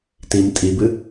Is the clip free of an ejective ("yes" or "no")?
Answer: no